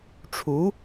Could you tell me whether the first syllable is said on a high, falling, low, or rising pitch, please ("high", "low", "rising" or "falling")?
rising